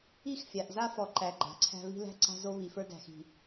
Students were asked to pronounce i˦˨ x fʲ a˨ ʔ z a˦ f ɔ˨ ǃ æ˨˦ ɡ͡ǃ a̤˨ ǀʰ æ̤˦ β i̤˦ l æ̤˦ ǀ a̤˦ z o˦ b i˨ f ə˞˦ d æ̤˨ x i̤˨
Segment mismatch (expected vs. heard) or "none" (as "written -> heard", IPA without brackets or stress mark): b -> β